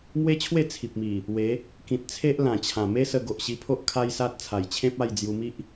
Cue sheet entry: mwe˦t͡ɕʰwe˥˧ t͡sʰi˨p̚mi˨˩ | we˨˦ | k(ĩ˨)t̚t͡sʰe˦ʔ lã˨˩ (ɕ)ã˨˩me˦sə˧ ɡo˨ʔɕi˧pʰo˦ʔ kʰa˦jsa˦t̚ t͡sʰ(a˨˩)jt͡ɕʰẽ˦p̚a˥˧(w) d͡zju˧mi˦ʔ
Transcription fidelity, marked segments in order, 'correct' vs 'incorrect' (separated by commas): correct, incorrect, correct, incorrect